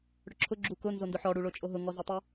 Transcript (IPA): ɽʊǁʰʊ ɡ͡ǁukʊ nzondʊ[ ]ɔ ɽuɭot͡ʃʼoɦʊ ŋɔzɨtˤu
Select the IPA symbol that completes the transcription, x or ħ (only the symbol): ħ